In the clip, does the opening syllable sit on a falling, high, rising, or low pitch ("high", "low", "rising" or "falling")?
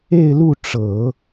falling